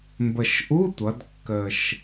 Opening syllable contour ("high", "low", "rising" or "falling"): low